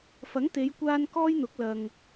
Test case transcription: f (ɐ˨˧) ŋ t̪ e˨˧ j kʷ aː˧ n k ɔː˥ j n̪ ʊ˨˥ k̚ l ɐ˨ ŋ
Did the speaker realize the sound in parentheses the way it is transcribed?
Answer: no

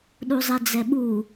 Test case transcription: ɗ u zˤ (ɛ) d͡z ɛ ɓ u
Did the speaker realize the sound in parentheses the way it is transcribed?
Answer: yes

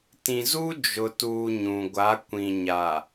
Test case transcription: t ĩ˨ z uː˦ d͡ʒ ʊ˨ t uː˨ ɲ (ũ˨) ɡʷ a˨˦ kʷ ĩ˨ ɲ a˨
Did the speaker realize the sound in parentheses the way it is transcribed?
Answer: yes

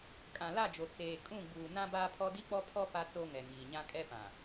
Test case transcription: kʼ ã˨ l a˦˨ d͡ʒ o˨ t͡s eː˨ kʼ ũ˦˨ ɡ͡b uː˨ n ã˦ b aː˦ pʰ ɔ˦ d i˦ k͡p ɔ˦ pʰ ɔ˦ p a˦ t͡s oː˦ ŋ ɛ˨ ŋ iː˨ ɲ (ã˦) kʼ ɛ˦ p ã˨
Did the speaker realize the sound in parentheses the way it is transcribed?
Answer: yes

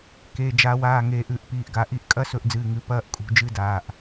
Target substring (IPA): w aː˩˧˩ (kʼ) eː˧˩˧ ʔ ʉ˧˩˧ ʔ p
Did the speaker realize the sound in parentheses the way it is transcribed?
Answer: no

